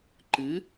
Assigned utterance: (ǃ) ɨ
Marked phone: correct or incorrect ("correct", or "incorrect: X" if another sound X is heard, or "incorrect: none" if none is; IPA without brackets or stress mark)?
correct